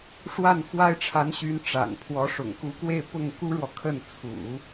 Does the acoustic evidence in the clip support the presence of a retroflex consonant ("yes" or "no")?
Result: yes